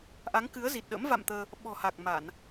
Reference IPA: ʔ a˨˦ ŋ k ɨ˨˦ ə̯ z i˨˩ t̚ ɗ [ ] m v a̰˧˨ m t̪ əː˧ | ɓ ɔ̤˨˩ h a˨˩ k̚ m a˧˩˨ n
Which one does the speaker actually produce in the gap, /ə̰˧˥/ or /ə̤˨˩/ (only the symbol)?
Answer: ə̰˧˥